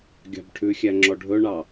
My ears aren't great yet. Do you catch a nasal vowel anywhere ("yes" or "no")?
no